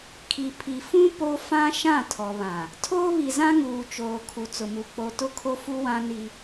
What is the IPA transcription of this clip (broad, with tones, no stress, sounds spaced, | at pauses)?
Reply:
kʰ i˨ pʰ i˨ f ũ˦ p o˦ f ã˦ ʃ ã˦˨ tʰ ɔ˨ β ã˨ | tʰ oː˦ β i˨ z ã˦ ŋ uː˨ t͡ʃ oː˨ kʰ u˨ t͡s ʊ˨ m u˨ k͡p o˨ t ʊ˦˨ kʰ o˦ f u˦ w ã˦ n i˦